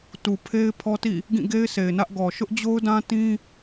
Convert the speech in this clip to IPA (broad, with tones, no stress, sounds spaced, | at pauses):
t u˨ pʰ e˦ ɪ̯ pʰ ɔ˦ t ḭ˦˨ | ɡ ĩ˦˨ ɡ e˦ ɪ̯ s e˨ ɪ̯ n ä˦ ʔ ɡ ɔ˨ ʃ ʊ˦ ʔ d͡ʑ o˦ ʊ̯ d ã˦ t ĩ˦